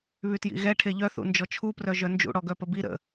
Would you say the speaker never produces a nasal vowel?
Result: yes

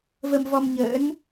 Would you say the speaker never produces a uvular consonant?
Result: yes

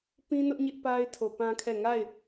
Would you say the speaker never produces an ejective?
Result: yes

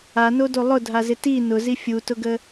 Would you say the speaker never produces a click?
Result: yes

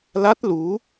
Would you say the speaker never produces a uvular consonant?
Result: yes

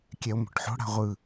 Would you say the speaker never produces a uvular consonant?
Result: no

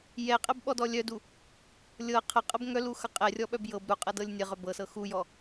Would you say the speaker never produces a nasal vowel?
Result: yes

